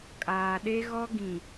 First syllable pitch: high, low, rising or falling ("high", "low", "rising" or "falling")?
low